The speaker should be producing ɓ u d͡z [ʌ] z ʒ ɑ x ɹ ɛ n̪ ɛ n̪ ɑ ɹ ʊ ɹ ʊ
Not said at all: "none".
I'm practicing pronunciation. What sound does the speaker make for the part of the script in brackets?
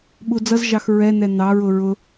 ʌ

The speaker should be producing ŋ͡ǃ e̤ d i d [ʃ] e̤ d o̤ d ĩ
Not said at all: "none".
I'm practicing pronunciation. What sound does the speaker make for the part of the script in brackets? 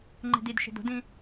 ʃ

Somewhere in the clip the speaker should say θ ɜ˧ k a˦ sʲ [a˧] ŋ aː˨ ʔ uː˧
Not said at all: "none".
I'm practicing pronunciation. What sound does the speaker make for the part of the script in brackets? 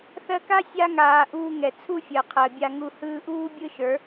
a˧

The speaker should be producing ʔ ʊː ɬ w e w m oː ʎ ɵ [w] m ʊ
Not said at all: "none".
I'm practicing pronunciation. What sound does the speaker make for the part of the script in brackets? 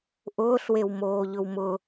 w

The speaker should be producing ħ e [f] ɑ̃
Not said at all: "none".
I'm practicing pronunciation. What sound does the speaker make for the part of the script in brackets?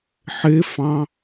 f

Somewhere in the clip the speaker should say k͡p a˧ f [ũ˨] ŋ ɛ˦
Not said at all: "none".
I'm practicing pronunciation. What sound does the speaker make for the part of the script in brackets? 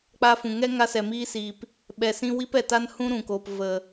ũ˨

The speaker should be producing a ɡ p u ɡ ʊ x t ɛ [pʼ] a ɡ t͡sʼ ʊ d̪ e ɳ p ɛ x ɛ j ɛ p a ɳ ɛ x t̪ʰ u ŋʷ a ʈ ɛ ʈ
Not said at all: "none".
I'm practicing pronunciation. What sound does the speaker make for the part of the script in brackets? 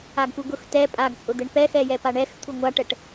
pʼ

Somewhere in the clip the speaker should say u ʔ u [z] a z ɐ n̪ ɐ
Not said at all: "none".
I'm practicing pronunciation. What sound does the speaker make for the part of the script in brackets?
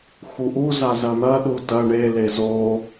z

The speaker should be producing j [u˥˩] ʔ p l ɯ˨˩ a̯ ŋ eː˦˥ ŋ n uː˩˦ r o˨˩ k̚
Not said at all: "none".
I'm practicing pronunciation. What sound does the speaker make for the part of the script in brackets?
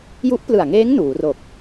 u˦˥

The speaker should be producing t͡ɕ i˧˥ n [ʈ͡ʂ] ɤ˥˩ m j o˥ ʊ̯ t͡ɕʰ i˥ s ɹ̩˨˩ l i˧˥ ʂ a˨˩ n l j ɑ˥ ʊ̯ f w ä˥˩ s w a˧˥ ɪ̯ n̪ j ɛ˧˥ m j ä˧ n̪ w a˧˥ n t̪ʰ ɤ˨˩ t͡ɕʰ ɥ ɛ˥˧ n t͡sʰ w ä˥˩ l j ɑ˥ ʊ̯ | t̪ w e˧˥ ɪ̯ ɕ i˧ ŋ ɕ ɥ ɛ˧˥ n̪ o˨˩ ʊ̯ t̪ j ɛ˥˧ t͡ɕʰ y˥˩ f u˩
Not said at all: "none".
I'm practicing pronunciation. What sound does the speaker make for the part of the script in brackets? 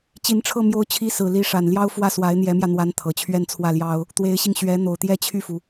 ʈ͡ʂʰ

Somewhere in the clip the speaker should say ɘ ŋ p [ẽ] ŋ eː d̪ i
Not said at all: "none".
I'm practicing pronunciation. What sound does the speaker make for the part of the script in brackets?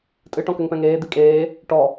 ɛ̃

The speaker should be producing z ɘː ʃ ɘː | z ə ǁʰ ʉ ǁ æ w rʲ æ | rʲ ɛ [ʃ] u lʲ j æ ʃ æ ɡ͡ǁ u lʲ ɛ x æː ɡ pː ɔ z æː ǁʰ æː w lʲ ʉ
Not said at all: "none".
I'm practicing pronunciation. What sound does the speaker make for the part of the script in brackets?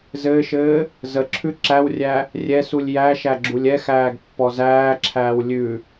s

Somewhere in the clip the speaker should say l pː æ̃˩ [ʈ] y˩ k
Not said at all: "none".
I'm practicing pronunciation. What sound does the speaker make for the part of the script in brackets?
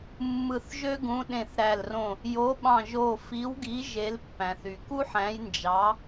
θ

